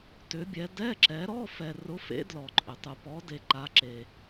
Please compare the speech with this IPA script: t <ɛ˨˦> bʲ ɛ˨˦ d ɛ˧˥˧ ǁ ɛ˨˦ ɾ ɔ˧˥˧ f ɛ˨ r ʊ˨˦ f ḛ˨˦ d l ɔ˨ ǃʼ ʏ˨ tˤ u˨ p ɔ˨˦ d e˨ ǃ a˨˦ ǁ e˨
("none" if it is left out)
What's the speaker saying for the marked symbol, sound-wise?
ʏ˨˦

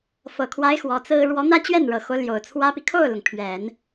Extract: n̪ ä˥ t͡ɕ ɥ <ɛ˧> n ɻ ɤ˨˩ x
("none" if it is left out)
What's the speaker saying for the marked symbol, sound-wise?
ɛ˥˩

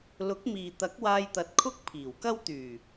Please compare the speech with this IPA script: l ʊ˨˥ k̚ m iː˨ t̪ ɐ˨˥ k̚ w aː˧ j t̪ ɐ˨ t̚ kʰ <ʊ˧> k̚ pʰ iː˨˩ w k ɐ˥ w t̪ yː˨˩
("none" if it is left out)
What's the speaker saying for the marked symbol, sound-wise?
ʊ˥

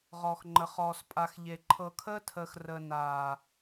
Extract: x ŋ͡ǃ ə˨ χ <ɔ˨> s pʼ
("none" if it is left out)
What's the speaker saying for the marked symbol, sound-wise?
ɔː˨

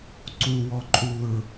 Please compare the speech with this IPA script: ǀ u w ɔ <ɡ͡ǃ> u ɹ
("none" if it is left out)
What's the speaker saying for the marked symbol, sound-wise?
ǃʼ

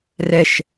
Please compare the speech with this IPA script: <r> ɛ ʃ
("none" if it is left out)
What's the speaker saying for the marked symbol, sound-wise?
r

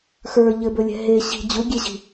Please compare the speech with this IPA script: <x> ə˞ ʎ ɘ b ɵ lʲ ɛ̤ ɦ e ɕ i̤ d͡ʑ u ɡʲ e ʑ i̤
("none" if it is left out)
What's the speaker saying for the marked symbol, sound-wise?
x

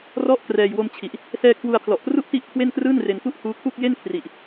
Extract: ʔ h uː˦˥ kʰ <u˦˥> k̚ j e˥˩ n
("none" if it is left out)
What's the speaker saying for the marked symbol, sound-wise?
u˥˩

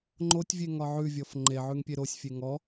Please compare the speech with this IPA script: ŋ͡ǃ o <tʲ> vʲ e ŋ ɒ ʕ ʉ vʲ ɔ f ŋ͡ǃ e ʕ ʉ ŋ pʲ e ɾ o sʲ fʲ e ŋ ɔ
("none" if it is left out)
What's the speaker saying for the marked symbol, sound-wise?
tʲ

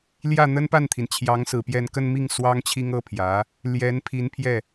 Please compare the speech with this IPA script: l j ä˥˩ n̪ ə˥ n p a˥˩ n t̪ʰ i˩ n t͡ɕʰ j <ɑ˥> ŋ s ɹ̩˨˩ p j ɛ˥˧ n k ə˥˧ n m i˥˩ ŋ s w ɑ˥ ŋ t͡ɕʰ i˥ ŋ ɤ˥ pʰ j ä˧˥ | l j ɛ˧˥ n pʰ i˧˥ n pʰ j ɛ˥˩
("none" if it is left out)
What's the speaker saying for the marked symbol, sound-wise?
ɑ˧˥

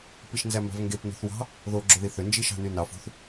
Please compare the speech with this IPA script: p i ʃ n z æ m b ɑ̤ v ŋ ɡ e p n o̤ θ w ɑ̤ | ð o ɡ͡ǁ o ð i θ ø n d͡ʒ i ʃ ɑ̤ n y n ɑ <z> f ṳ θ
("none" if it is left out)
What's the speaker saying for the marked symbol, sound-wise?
none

